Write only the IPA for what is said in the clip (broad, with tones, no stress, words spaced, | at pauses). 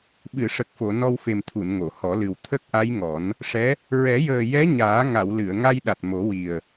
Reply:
ɓɨ˨˩˨ʂə˨˩k̚fo˨˩˨ nɔ˧wfe˨˩mt̪ʰu˨˩˨n ŋo˨˩˨hɔ˨˩˦lɨ˨˩w t̪ʰə˦˥k̚ʔa˧˥jŋɔ˨˩˦n | ʂɛ˧˥ | ɹɛ˨˩˦jəː˨˩ jɛ˧˥ɲaː˨˩˦ŋa˨˩˨wlɨ˨˩˨ə̯ ŋa˧jɗa˨˩t̚ mo˨˩˦wi˨˩ə̯